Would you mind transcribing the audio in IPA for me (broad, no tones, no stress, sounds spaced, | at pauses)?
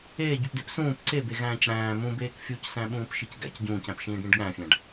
eː ɟ u p d e p s ũː p ǀ e b e ɣ æ̃ː c ɽ æ̃ː m ũ b eː k fʲ u c s æ̃ ɓ ũː p ʃ i c ɡ æ̰ c ɟ ũː c æ̃ p ʃ ĩː ɖ ɽ ĩ ɖ ɠ æ̃ fʲ æ̃ ɖ